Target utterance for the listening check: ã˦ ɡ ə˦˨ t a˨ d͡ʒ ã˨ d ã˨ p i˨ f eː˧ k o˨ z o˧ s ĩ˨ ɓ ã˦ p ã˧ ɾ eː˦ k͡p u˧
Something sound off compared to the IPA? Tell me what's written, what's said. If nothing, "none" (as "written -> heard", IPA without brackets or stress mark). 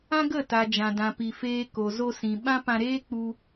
none